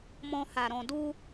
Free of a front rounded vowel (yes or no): yes